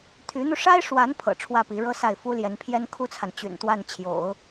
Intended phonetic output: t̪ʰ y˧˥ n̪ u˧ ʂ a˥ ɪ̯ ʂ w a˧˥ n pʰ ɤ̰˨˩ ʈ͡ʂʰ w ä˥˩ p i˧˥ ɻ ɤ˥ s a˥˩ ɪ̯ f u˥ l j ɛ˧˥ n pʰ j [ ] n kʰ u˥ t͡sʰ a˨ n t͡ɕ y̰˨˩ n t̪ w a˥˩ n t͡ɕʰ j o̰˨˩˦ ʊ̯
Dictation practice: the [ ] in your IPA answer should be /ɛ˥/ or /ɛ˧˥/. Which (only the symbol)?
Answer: ɛ˥